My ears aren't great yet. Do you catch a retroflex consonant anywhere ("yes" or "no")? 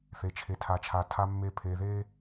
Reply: no